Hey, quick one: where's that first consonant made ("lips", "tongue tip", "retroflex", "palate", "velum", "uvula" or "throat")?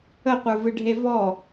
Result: uvula